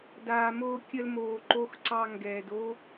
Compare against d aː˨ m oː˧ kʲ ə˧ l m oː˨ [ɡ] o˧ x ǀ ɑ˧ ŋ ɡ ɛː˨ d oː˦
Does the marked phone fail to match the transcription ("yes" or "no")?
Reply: yes